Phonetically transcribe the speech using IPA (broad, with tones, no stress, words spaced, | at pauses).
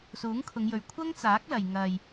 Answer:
suː˨˥ŋkʰʊ˨˧ŋjɵ˨ɥ kʷʰɐ˥ŋt͡saː˨˥k̚lɐ˨j ŋɐ˧j